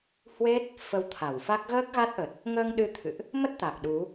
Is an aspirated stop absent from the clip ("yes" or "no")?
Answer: no